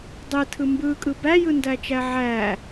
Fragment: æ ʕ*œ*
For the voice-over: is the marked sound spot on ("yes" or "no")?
no